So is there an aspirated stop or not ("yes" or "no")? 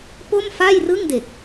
no